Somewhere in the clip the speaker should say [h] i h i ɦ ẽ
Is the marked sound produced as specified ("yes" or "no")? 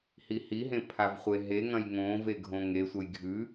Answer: yes